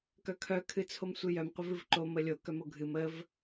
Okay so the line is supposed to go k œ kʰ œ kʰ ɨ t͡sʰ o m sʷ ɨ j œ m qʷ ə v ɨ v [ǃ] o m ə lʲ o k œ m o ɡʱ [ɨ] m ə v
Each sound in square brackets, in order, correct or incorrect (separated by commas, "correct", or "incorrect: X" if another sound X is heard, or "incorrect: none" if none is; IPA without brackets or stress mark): correct, correct